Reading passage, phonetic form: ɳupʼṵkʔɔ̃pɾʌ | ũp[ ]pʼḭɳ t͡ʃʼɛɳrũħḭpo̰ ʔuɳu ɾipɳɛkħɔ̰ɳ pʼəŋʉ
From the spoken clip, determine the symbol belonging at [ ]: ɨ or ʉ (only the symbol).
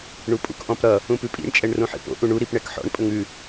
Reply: ʉ